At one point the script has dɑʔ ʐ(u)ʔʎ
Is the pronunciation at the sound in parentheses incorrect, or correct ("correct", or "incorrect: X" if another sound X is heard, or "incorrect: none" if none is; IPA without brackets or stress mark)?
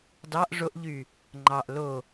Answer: incorrect: o